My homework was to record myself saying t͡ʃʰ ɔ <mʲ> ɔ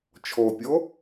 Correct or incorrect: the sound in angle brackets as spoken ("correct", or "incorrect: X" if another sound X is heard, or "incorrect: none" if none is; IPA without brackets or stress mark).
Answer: incorrect: pʲ